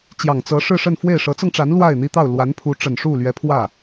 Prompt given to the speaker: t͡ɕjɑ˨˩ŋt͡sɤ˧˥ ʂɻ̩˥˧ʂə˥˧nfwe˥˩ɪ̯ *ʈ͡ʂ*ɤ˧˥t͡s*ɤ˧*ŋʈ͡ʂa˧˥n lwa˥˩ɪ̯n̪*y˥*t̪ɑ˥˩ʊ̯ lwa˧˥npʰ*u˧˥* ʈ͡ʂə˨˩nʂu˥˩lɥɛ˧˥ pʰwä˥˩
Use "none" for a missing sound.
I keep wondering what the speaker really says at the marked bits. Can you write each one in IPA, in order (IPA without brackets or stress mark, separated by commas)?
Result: ʂ, ɤ˧, i˥, u˧˥